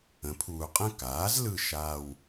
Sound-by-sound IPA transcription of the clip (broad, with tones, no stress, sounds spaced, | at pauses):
ə̃˩˥ pʰ uː˨ qʼ ə̃˥˩ k aː˩˥ z l ɯ˥˩ ʃ aː˥˧ w